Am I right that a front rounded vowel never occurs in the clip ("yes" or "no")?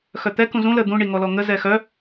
no